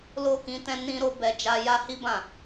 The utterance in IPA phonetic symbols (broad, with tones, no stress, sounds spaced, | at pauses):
l o˦ k ĩ˧ t ɛ̃˦ n ĩ˦ ɾ o˦ b ɛ˦ d͡ʒ a˦ j a˦ h i˦ b ã˦˨